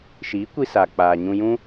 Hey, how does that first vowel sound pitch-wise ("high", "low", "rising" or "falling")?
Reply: rising